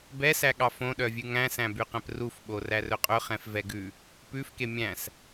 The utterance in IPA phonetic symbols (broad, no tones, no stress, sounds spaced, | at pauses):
b ɛ s æ ɠ ɑ f õ ɗ œ vʲ ʉ ŋ æ̃ s æ̃ b y q ɛ̃ p r u f ɓ o r æ r ɵ qʼ ɵ χ ɛ̃ f v ɛ ɡ ʉ | p ʉ f k e mʲ æ̃ s